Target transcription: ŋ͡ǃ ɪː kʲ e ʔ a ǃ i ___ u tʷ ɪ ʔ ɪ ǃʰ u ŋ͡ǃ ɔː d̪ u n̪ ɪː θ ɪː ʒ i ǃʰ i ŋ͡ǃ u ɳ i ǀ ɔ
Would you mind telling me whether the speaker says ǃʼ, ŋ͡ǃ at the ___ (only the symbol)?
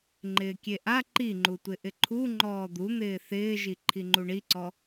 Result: ŋ͡ǃ